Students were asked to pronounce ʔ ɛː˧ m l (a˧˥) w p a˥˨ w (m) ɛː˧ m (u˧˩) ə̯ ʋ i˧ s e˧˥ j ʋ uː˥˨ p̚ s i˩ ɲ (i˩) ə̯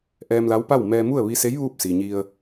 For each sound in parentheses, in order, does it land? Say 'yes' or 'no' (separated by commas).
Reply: yes, yes, no, no